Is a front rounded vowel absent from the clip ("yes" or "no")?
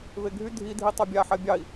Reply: no